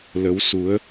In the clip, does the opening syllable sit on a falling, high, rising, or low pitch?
rising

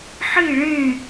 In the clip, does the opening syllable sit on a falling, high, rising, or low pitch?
falling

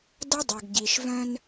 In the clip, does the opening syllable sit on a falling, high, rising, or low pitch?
high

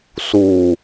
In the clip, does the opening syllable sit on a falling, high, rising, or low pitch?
low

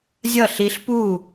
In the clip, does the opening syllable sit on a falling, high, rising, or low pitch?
falling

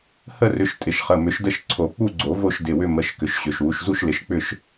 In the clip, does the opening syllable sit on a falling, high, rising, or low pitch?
falling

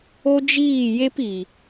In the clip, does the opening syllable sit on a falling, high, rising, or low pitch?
high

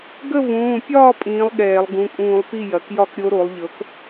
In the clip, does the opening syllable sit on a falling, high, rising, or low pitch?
falling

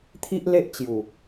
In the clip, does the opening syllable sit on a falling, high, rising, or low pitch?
high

